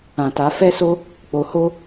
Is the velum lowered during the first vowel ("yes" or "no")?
yes